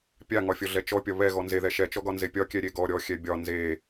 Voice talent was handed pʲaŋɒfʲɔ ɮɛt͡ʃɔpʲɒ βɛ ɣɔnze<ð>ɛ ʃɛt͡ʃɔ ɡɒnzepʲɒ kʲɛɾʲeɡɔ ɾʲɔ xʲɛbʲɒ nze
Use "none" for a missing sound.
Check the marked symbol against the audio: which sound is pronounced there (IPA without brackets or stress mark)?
ð